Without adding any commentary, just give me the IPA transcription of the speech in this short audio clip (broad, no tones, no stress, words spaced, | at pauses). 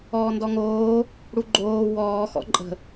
ɔːndɔŋoː | ɽuɡ͡ǃoː wɔːxɔ̰ ǃʼə̤